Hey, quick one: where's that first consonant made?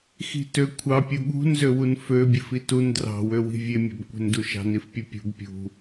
velum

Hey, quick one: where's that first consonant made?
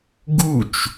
velum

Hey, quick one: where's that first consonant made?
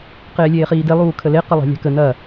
uvula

